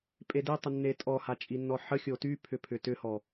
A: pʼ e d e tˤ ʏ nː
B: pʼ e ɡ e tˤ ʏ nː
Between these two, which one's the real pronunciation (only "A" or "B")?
A